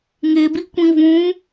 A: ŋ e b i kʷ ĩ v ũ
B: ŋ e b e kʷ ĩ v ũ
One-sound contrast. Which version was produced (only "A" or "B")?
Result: A